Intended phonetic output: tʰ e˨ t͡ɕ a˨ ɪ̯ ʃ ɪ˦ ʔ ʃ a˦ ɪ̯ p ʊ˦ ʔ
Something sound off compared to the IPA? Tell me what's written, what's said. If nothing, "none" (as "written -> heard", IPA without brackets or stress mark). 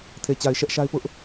ɪ˦ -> ɛ˦